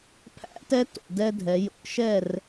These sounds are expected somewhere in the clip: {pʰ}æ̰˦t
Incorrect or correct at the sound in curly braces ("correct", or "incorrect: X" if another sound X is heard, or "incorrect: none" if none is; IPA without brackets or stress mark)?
correct